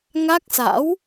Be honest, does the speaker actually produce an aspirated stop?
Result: no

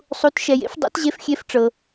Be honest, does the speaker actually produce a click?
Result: no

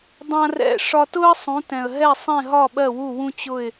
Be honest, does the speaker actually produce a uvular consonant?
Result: no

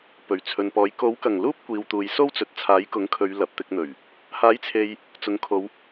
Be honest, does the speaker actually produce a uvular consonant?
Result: no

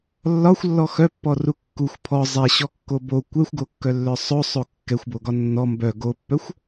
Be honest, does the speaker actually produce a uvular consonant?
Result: no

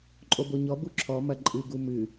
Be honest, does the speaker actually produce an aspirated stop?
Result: yes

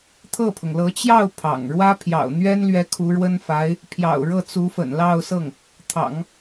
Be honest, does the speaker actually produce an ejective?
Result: no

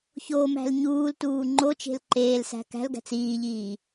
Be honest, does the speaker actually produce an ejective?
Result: no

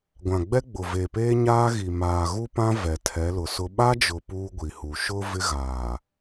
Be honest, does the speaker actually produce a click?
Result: no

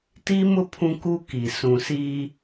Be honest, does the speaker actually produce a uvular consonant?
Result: no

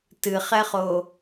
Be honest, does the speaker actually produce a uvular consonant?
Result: yes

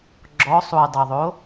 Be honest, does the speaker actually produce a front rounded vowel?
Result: no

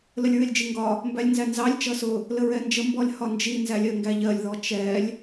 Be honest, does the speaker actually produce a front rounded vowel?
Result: no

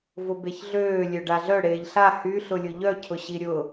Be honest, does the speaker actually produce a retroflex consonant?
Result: yes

